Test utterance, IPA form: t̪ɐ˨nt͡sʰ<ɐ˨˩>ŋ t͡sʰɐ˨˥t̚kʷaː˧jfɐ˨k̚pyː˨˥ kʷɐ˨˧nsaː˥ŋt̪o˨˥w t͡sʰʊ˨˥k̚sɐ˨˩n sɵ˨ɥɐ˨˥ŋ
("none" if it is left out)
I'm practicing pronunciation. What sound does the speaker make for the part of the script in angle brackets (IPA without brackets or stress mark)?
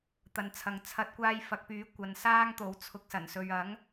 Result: ɐ˨